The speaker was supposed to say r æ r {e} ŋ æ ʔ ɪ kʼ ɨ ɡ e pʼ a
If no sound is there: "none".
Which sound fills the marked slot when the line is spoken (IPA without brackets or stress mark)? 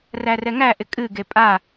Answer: ɛ